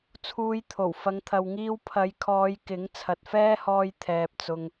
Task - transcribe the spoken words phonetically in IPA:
t͡sʰ uː˧ j t̪ʰ o˨˩ w f ɐ˨˧ ŋ t̪ʰ ɐ˨ w ŋ iː˧ w pʰ ɐ˨˧ j kʰ ɔː˨˧ j k ɪ˨˥ ŋ t͡sʰ ɐ˨ t̚ f ɛː˥ h ɔː˧ j t̪ʰ ɛː˨ p̚ t͡s ʊ˨ ŋ

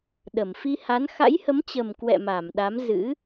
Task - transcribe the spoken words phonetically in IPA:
ɗ ə˧˩ m f i˧ h a˨˦ n x a̰˧˥ j h ə˨˦ m t͡ɕ ə˨˩ m k w ɛ̰˧˨ m a˧˩ m ɗ a˨˦ m z ɨ̰˧˥

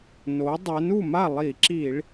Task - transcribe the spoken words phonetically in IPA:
n o˩˥ dˤ ɛ˩˥ n u˥˩ m a˥˩ lˠ i˧˩˧ ǁ i˧˩˧ ɭ

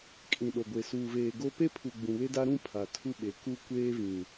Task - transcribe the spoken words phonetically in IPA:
kʼ ĩ˨ ɗ o˨ ɡʷ e˨ s uː˨ v eː˨ ɡ o˦ p e˦ pʰ u˨ ɡ͡b ũ˨ β e˦ d a˦ ɾ ũ˦ pʰ a˨ tʰ u˦ ɓ e˨ k u˦ kʷ eː˦ v ĩ˨

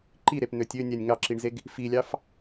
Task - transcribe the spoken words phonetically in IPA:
ǃ i ɾ e p n̪ ø tʲ ø nʲ æ nʲ ŋ ɑ ǁ i ɳ z e ɡ | f i lʲ ɑ f

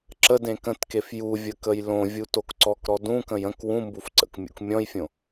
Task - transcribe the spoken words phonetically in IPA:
ǁ ə d ẽ k ə̃ t k e f j u vʲ ə k ə j l õ vʲ u t o k ǀ ɔ k ɾ ɔ d ũ k ə̃ j ə̃ k w ũ m b u f ǀ ə̰ k mʲ ṵ k mʲ ɔ̃ j fʲ õ

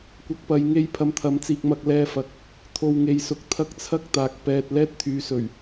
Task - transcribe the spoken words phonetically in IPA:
kʷ ɐ˧ k̚ p ɐ˧ j ŋ e˥ j pʰ ɐ˧ m t̪ʰ ɐ˨˥ m t͡s iː˧ k̚ m ɐ˧ k̚ l ɛː˧ f ɐ˨˥ k̚ | t̪ʰ o˧ w ŋ e˨˧ j s ʊ˨ k̚ t̪ʰ ɐ˥ k̚ t͡sʰ ɐ˥ k̚ t̪ aː˨ k̚ p ɛː˧ t̚ l ɛː˥ t̚ t̪ʰ yː˨˧ s ɵ˨˩ ɥ

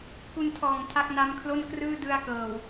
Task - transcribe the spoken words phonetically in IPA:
k u˧ n tʰ ɔː˨˩ ŋ tʰ a˦˥ k̚ n a˦˥ m kʰ l o˥˩ n k r ɯː˥˩ d ɯ˧ a̯ k ɤː˨˩ w

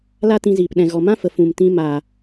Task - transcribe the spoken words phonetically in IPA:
l a˦ t ĩ˧ z iː˨ p ɗ ɛ̃˨ ɣ ɔ˨ m ã˦ f ə˨ f ũ˨ m t ĩ˧ m a˨

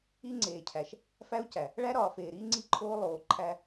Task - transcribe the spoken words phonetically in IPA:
i˦ ŋ͡ǀ eː˨ cʰ æ˨ ʃ | f æ˦ u̯ c æ˨ | ɭ æ˦ ɾ ɒː˨ f eː˨ ɾ iː˦ ŋ͡ǀ i˦˨ ǃʰ oː˦ lˠ oː˨ ǃʰ æ˦

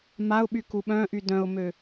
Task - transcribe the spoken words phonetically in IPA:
m a ʊ̯ ɓ y k u ɓ œ̃ ʔ y d œ̃ ʊ̯ m ø

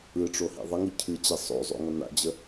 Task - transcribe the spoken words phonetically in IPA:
ɯ ʈ͡ʂ o h ḭ ðˤ ə ŋ ɯ cʰ ɨ t͡ɕ ɛ sˤ o̰ zˤ o̰ ŋ ʌ n a̰ d͡ʑ ə

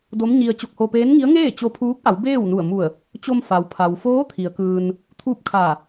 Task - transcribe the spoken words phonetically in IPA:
d o˧˥ m ɲ i˧ ə̯ t͡ɕ o˧ k̚ h o˧ p eː˧˥ n ŋ i˧˥ ə̯ ŋ eː˥˨ t͡ɕ o˧ pʰ uː˧˥ k̚ ʔ a˩˧ w b eː˥˨ w n u˧˩ ə̯ m u˧˩ ə̯ | t͡ɕ o˧ m f a˩ w pʰ a˩ w f oː˧˥ t̪ʰ i˩˧ ə̯ k ɯː˧ n | t̪ʰ uː˥˨ p̚ kʰ a˧˩

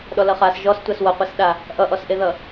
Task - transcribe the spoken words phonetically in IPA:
ɗ ɔ l ʌ χ a s ʒ ɔ s tʷ a s w ʌ qʷ e s ɗ a | ʔ ʌ ʔ ɔ s ʔ e ð ʌ

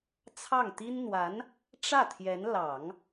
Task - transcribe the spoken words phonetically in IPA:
t͡sʰ ɑ˥˩ ŋ t̪ i˥ n n̪ w a˧˥ n | ʈ͡ʂ ä˥˩ t̪ʰ j ɛ˧˥ n l ɑ˨˩˦ ŋ

